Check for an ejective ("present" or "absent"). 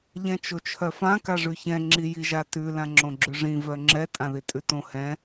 present